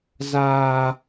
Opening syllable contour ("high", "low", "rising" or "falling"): high